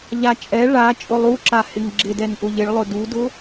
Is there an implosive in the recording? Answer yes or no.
no